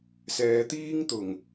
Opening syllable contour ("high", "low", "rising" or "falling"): low